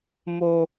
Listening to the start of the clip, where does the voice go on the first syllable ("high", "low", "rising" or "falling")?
low